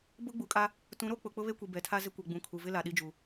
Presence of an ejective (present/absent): present